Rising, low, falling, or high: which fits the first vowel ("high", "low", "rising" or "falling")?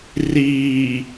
low